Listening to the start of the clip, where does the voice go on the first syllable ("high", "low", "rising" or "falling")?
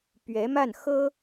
rising